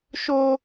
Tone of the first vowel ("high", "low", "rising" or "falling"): high